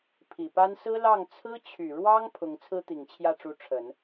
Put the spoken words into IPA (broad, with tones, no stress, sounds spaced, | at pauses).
pʰ i˨˩ p a˥ n s ɹ̩˥ l ɑ˥˩ ŋ t͡sʰ ɹ̩˥ t͡ɕʰ y˨˩ ɻ w ɑ˥ ŋ pʰ ʊ˧˥ ŋ t͡sʰ ɹ̩˥ t̪ i˨˩ ŋ t͡ɕʰ j ä˥˩ ʈ͡ʂ u˧˥ ʈ͡ʂʰ ə˨˩˦ n